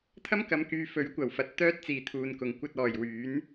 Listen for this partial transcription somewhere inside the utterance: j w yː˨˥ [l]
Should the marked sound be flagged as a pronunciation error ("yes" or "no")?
yes